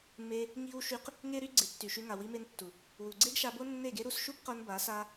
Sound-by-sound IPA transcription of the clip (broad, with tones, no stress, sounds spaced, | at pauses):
m e˦ | ŋ i˦ w ʃ y˦ q | ŋ e˦ ɾ y˦ ɡ͡ǀ e˨˦ tː y˨ ʃ y˧ ŋ a˨ w i˧ m e˧ n tː u˨ | w u˨ ɡ͡ǀ e˦ ɡ ʃ a˧ b o˦ nː e˦˨ ɡ e˦ ɾ u˧ s ʃ u˦ b q o˧ n b a˨˦ s a˦